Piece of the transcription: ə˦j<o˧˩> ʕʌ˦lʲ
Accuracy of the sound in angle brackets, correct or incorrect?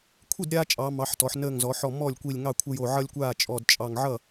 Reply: correct